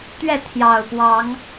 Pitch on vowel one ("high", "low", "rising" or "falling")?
falling